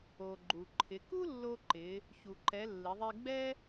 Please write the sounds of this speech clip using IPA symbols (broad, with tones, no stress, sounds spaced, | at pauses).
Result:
o˩ ɡ͡ǃ u˩ ǃʰ ɪ˩˧ k u˥ lː o˧ ǃ ɪ˩˧ | ç u˩ ǃ ɛ˩˧ lː ɪ˩˧ ðˤ e˧ ɡ͡b ɛ˥